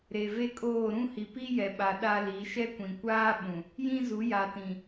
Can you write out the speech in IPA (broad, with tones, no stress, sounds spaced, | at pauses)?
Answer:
ɾ e˨ v e˦ kʼ oː˦˨ ɾ ũ˦ h i˨ p i˦ j ɛ˨ ɓ a˨ ɗ a˦ l i˨˦ ʃ ɛ˦ kʷ ĩ˨ kʷ aː˦ ɓ ũ˨ | j ĩ˦ z u˨˦ j a˨ t ĩ˨